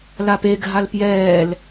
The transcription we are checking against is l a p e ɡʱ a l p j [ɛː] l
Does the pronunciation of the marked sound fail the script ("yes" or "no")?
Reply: no